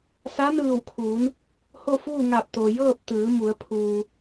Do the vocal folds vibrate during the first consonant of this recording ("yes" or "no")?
no